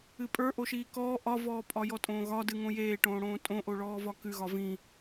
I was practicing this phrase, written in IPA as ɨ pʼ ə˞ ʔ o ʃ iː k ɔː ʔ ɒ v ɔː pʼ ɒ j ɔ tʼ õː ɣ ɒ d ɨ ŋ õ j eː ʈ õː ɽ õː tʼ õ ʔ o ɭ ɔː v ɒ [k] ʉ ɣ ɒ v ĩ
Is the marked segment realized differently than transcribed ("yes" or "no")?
no